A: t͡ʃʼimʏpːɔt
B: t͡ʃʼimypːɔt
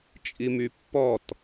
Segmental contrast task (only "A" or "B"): B